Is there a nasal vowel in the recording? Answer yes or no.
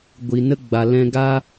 yes